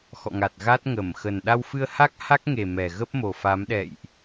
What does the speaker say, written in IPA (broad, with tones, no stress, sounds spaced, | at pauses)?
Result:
x ɔ̰˧˨ ŋ a˨˩ t̚ ɣ a˦˥ t̚ ŋ ə˧˩ m x ə˨˩ n ɗ a˧ w f ɨ˧ ə̯ h a˦˥ k̚ h a˦˥ k̚ ŋ e˨˩ m ɛ˨˩ ɣ ə˦˥ p̚ m o˨˩ f a˨˦ m ɗ ɛ̰˧˨ j ʔ